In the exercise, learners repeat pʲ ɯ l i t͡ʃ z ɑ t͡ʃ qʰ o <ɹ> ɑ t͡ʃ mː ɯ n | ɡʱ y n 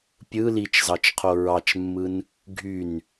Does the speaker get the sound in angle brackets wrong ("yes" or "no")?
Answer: no